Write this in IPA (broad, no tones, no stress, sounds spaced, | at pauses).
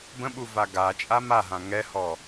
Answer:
b ə̃ ɓ u v a ɡ a t͡ʃʼ a m a ɦ ã ŋ ɛ h ɔ